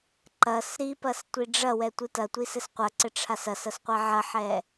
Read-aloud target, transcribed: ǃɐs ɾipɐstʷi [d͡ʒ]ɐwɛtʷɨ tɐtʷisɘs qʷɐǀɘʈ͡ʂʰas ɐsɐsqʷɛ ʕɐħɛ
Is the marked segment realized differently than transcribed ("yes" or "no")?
yes